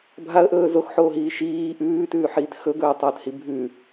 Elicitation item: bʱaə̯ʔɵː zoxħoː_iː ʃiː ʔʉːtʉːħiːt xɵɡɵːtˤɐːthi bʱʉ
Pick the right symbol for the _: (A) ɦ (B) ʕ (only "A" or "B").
A